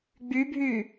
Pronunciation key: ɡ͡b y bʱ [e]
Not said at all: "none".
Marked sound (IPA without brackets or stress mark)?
y